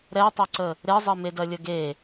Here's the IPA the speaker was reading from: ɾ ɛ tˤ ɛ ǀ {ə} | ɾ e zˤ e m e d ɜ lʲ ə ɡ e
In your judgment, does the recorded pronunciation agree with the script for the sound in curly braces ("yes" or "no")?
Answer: yes